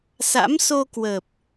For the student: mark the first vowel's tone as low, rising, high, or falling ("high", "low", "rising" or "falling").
rising